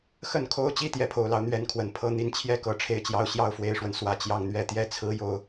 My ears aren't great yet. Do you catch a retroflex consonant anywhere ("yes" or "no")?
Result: yes